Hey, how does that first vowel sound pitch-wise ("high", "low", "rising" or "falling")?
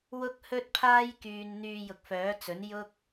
high